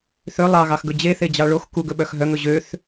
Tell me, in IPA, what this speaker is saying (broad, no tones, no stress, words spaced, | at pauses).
θø lˠɑɣɑxɡɵ d͡ʑeθed͡ʑɑ ɭox kuɡɵɓœx ɦœŋɵ ʑøθ